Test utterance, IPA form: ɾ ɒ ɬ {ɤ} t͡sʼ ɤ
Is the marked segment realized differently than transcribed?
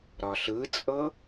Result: yes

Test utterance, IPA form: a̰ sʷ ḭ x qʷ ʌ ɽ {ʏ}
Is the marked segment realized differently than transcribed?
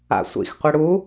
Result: yes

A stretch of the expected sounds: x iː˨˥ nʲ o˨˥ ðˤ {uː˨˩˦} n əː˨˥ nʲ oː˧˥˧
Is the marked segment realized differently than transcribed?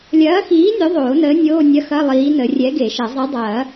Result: yes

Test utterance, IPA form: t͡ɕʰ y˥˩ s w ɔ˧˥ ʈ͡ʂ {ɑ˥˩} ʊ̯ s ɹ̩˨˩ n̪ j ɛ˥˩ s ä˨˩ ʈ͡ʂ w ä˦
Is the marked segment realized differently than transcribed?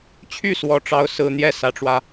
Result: yes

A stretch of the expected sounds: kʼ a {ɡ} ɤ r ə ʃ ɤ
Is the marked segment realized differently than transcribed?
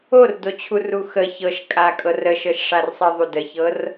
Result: yes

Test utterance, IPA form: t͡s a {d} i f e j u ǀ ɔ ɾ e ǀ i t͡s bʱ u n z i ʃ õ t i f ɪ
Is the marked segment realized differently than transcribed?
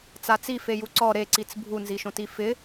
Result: yes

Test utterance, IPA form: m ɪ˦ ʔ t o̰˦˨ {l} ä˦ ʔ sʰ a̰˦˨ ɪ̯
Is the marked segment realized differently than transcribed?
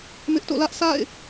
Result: no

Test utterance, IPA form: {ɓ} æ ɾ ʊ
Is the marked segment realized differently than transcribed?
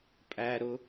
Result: yes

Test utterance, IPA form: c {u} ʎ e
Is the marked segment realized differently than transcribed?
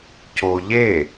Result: yes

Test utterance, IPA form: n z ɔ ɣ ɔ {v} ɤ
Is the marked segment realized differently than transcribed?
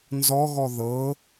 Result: yes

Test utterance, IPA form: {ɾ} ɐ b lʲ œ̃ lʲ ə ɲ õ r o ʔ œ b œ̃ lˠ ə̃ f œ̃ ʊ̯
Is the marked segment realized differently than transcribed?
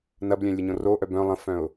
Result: yes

